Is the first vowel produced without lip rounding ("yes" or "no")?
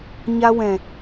yes